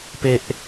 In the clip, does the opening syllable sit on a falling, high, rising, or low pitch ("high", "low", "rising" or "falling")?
high